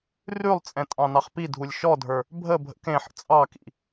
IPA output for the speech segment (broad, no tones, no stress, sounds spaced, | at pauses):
r ʉ lˠ t͡sʼ ɛ̃ tʼ ɑ̃ n ɑ χ p i dʱ u lʲ ʃ ɔ dʱ ə˞ | bʱ ə bʱ ə̰ k ẽ ħ ə̰ t͡sʼ ɑ k ḭ